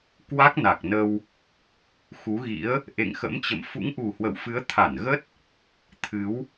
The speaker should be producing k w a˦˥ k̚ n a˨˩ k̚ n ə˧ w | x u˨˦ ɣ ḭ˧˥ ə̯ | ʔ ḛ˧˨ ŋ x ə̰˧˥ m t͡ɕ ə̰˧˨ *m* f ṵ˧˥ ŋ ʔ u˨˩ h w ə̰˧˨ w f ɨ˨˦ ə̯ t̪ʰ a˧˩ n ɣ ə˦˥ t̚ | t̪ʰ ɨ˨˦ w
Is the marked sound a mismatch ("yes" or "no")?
no